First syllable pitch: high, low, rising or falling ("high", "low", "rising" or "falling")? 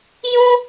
high